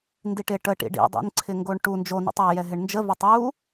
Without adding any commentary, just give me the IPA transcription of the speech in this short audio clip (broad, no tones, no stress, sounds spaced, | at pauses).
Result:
n d i ʈ ɪ ʈ ə ʈ ḭ ɖ ḭ dˤ ḭ n ǀʰ ɪ ŋ ɡ o ɳ ʈ u n d͡ʒ o n ḭ tˤ a j ɛ ɦ ɪ ɳ n d͡ʒ ə v a tˤ j u